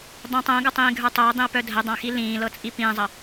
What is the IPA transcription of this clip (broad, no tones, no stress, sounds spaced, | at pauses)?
dˤ œ̃ tˤ ə̃ː ɡ ʌ tˤ ĩː ɡʱ ə˞ tˤ œ ə̯ dˤ ĩ ə̯ p œ dʱ ə dˤ ã x i l ĩː l ɤ t͡sʼ i p ĩː zˤ ʌ